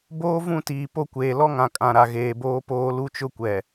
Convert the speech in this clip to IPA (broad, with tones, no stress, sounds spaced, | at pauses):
b oː˦ v ũ˦˨ t iː˨ p o˦˨ kʷ eː˨ l ɔ˦ ŋ ã˨ kʼ ã˨ ɾ a˨ ɣ eː˨ b oː˦ p oː˦ l u˦ t͡ʃ ʊ˦ kʷ ɛ˨